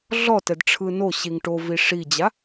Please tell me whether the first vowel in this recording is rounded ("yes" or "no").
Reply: yes